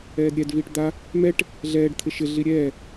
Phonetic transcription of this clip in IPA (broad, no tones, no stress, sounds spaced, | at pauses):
ɛː d ɾʲ ɛ d v iː ʈ d̪ a | m ɛ ʈ | ɮ ɛː ɖ t̪ʰ ɪ ʃ ɪ ɮ i ɾʲ ɛː